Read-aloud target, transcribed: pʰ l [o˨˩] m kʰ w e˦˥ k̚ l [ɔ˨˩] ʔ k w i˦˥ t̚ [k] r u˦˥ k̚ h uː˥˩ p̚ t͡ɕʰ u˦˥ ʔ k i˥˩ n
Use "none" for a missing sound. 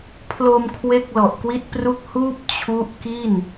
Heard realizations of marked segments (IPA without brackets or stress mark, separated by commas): o˧, ɔ˨˩, p